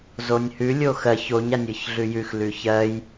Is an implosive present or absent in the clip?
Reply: absent